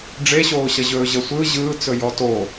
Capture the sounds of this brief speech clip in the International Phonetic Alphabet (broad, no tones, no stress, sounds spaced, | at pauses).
ɖ͡ʐ e ɕ oː ɕ ɐ ʑ ɵː ʑ ə sʷ ɯ ʑ ɯː t͡s ɵ j ɔ t oː